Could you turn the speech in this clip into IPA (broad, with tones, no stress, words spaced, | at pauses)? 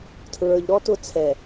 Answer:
tʰɹə˞˨ʎ ɾɔ˦tʊ˦˨ t͡sʰɛ˨